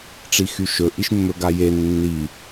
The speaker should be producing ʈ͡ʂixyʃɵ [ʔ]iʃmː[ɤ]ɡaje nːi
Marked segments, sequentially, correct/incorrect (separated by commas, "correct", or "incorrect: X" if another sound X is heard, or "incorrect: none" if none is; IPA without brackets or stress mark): correct, incorrect: ɵ